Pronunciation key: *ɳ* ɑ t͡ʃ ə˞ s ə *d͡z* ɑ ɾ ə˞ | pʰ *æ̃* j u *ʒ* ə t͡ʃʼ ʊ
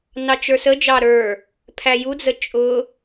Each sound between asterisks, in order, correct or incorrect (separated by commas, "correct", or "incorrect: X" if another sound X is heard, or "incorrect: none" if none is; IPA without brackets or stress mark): incorrect: n, incorrect: d͡ʒ, incorrect: æ, incorrect: d͡z